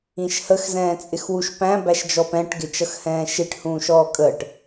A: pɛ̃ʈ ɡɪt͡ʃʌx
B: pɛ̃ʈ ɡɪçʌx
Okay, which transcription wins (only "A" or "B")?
A